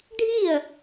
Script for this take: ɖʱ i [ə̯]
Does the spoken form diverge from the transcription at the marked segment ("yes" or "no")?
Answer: no